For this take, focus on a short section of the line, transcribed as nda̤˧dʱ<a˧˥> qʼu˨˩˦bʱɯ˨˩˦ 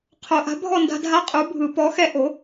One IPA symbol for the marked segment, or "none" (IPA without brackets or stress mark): a˧˥